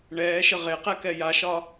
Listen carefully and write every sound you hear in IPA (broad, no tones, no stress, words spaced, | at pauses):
ɳɛːʃə ʁeqɛkɛ jaʃɒ